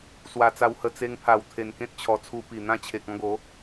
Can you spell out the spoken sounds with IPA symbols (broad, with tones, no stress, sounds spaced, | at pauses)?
s w a˧ t͡s a˧ w h ə˧ t͡s e˧ ŋ pʰ a˨˩ w t̪ʰ e˨˩ n k ẽ˦ t̚ t͡ɕʰ ɔ˨˩ t͡sʰ u˧ p i˨˩ n̪ ã˦ t͡ɕʰ e˨ k̚ ɔ̃˧ ɡ o˨˦